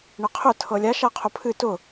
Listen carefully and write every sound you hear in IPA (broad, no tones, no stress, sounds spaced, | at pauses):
ɳ ɘ qʰ ʊ tʰ ɤ lʲ a ʃ a qʰ ʊ pʰ ɨ t ʊ